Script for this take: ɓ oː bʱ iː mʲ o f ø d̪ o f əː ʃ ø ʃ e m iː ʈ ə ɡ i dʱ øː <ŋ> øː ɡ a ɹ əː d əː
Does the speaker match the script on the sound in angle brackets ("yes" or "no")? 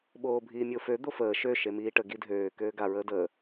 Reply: no